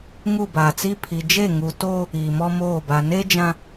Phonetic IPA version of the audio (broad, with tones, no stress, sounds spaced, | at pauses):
ŋ u˦˨ b aː˨ t͡s i˦ pʰ i˨ d͡ʒ e˦˨ ŋ u˨ t oː˦ | iː˨ m ɔ˦ m oː˦˨ b a˨ n e˦ d͡ʒ ã˨